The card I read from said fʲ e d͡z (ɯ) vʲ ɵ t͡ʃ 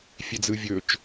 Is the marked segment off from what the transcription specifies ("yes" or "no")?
no